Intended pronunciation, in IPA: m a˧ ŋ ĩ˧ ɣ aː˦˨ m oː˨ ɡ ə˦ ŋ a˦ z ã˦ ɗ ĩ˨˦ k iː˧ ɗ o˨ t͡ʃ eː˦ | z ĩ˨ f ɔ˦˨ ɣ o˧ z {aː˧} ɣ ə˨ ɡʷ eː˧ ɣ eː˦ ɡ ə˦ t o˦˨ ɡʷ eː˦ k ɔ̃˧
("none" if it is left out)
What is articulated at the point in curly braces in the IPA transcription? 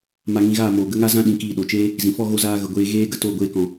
aː˧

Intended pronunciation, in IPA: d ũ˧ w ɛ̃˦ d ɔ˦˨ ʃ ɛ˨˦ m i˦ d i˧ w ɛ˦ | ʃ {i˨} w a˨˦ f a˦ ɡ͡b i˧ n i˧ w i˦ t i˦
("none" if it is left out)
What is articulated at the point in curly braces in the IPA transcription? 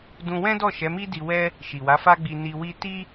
i˨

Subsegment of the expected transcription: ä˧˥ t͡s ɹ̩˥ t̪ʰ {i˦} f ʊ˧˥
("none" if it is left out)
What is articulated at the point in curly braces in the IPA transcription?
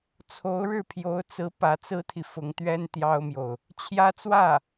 i˨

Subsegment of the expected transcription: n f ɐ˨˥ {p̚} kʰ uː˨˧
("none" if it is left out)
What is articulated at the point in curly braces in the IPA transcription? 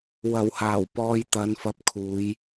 p̚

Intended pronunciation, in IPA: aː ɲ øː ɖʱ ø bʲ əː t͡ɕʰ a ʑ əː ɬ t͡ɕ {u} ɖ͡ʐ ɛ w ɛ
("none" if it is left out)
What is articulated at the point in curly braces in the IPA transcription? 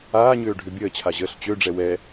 ø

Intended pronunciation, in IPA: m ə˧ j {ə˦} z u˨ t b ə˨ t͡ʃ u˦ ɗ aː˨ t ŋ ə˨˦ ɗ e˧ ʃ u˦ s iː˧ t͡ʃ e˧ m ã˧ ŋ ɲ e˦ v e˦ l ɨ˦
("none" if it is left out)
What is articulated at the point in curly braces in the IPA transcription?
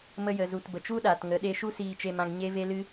ə˨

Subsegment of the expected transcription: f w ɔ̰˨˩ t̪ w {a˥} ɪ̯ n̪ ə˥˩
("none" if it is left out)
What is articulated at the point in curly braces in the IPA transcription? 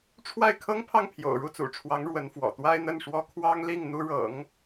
a˥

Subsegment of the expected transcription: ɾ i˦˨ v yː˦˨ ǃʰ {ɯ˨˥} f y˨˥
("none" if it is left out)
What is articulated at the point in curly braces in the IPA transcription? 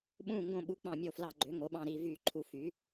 u˨˥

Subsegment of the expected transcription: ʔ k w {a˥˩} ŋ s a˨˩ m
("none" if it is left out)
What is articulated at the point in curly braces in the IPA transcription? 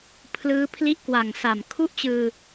a˨˩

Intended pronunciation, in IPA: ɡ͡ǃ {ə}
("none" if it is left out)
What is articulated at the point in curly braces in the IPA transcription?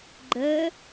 ə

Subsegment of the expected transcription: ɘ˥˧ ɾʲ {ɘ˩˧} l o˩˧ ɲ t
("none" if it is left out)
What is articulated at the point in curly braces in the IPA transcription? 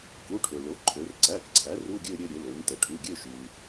ɘ˩˧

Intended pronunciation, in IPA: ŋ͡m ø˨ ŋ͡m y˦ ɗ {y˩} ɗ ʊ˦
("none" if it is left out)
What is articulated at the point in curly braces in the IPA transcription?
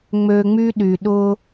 y˩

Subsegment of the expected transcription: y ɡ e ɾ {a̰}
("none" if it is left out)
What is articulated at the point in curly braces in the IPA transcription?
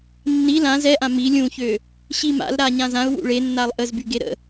ə̰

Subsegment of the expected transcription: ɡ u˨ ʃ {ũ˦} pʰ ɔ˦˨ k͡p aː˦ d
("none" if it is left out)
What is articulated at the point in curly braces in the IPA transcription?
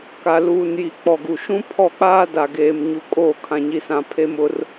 ũ˦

